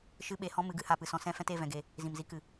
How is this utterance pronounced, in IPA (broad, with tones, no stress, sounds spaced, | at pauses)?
ʃ ɨ˦ ɓ e˧ h ɔ̃˦ m ɨ˨˦ ɡ ɨ˧ h a˧ p ɨ˨ s ɔ̃˧ s ɛ̃˦ f ɛ̃˦ t e˦˨ v ɛ̃˨ ɡ e˨ | z ĩ˨ m z i˧ k ɨ˨